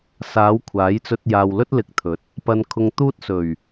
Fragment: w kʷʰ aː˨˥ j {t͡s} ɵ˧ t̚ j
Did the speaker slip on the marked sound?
no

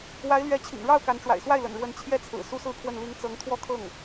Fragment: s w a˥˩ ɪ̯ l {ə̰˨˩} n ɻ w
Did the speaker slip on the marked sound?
no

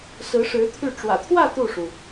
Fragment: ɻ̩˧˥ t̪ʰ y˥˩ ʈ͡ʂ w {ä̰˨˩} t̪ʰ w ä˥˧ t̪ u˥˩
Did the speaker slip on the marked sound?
no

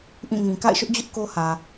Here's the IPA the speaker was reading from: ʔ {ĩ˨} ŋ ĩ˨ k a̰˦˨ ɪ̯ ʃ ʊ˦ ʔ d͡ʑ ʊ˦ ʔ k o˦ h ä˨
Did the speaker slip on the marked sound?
yes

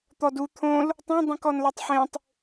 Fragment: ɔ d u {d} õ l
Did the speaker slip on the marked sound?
yes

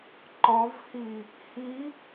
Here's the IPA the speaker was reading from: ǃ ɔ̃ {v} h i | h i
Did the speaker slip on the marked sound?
no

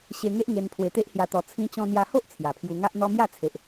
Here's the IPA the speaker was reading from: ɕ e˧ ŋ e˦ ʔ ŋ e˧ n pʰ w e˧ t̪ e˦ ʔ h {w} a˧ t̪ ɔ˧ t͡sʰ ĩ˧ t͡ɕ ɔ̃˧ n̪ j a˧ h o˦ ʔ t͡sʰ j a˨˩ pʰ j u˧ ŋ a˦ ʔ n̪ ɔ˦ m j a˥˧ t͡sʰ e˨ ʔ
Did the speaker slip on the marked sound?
yes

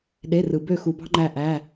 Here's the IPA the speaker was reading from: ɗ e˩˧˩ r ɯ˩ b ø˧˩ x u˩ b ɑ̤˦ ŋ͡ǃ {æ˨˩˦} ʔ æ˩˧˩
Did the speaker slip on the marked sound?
yes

